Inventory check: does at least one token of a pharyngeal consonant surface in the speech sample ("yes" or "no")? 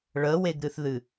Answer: no